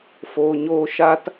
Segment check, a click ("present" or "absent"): absent